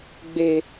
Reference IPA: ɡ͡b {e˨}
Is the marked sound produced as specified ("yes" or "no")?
yes